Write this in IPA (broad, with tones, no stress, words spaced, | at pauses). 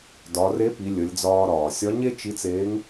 dɒ˩˧re˧˥pi˩˧ lʲə˩˧lʲd͡zɒː˧ɾɒː˩ sʲɒ˧˥ɲe˥ t͡ʃi˧˥t͡seː˧˥ŋ